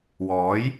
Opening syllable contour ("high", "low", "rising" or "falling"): rising